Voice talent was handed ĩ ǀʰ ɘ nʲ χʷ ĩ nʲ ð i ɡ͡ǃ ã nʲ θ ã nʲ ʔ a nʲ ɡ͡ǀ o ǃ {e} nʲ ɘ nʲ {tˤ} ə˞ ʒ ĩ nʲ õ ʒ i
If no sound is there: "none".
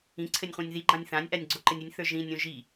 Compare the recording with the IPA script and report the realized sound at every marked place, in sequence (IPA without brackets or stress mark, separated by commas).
ɘ, θ